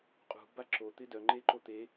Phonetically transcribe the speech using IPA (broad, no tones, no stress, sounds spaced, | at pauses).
qʼ ṳ b a ǁ o t̪ ɪ d œ ŋ͡ǃ e ǃ o t̪ e